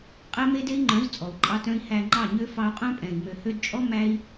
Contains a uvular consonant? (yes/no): yes